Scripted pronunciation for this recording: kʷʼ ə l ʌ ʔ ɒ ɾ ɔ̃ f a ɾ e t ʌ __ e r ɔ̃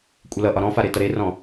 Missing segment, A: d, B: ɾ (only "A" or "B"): B